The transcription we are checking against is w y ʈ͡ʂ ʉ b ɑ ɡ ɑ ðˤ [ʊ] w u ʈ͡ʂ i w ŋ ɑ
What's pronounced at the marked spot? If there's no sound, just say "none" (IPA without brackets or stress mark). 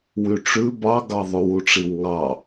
ʉ